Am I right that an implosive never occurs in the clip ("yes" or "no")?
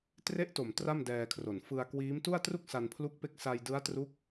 yes